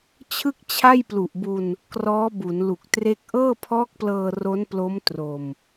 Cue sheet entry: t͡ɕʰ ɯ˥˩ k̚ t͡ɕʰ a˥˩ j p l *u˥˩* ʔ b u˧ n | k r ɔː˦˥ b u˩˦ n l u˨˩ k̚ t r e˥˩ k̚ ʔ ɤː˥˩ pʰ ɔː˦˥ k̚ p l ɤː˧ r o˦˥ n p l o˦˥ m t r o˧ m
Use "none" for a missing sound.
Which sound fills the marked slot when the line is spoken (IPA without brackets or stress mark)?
u˨˩